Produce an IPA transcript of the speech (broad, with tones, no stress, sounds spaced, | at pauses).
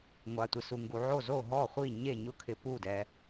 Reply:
ŋʷ a˧ tʷ ɪ˧ s u˧ ŋ ɡ u˧ ʕ o˥˨ z o˥˨ ɦ ɔ˥˨ χʷ i˥˨ ɲ e˥˨ ɲ ʊ˥˨ kʰ ɪ˧ p u˥˨ d ɛ˧